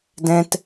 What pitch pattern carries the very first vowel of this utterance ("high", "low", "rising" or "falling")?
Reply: high